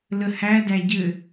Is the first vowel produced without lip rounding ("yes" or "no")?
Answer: yes